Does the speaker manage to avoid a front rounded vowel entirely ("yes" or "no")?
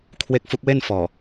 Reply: yes